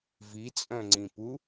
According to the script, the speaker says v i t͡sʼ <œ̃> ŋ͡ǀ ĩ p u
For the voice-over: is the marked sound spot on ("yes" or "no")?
yes